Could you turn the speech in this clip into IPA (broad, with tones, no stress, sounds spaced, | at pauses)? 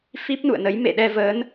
f i˦˥ p̚ n ṵ˧˨ ə̯ n ə˨˦ j m ḛ˧˨ ɗ ɛ˧ v əː˨˦ n